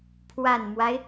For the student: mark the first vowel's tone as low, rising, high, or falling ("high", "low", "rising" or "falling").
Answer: low